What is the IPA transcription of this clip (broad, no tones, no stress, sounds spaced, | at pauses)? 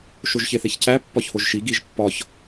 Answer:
ʃ o ʒ ç e θ e ç c æ pː ɒ ç h o ʒ ʃ i ɡ i ʒ pː ɒ ç